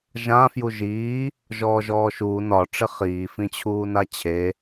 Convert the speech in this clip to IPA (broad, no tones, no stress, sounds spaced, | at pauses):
ʒ ã f j u ʒ iː | ʒ ɔː ʒ ɔː ʃ uː n ɒ ʈ͡ʂ ɪ χ iː f ĩ t͡ɕʰ uː n a t͡ɕʰ e